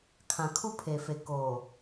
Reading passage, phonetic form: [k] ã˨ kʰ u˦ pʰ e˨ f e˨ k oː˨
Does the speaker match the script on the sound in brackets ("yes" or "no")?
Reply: no